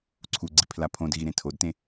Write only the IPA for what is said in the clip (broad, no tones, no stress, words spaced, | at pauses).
ǀʰuɡ͡ǀi pʰlapʰõdɣi ɾẽtʰodtẽ